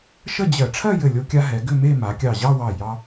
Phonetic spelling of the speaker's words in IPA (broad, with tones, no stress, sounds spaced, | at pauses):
ʃ ə˥˧ d͡ʑ ɜ˧˩˧ ʈ͡ʂʰ ɜ˥˧ j ɘ˧˩ lʲ o˧ kʲ a˧ ɦ ɛ˩˧ ɡ ʏ˥˧ m e˥˧ m a˩˧ kʲ ɑ˧˩ ʑ ɑ˥˧ w ɑ˧˩ j ɑ˧